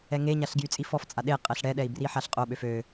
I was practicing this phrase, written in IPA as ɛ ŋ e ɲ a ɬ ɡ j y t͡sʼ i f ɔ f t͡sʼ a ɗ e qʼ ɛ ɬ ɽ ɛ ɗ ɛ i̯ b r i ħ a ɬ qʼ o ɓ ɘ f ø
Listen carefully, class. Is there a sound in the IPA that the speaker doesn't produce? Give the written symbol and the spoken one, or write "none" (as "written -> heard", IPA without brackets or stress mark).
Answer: ɘ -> ø